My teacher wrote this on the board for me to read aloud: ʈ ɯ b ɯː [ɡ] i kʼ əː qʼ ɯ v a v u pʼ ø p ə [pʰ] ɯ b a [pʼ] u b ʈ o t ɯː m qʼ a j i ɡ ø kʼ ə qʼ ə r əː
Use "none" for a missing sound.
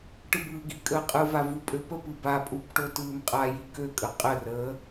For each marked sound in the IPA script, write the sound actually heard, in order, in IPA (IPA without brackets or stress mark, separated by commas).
ɡ, p, pʼ